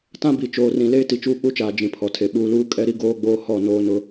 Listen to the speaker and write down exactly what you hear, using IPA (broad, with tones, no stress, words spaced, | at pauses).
tã˦bi˨t͡ʃoː˨rĩ˨ leː˦ti˨t͡ʃuː˦ k͡pu˦t͡ʃaː˨ d͡ʒĩ˨pʰɔ˨tʰe˨ ɓuː˨luː˦ kʼɛ˦ɾi˦ɡoː˦ɡ͡boː˦ hɔ˦˨noː˦ nʊ˦